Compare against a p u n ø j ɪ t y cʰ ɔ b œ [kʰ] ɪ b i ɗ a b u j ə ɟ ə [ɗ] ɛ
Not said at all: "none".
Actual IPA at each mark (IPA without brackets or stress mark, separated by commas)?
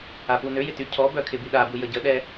kʰ, ɗ